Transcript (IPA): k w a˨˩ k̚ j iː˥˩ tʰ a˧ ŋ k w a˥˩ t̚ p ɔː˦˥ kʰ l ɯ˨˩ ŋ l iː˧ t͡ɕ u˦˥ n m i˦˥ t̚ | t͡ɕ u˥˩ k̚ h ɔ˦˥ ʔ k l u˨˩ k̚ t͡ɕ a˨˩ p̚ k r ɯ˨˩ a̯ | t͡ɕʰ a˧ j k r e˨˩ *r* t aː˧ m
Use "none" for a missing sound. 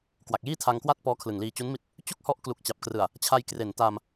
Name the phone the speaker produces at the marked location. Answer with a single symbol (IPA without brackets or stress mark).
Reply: n